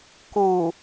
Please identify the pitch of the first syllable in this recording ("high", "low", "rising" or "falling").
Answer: low